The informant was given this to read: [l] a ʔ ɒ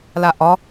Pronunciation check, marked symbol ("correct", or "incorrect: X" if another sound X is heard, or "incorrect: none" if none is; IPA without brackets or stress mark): correct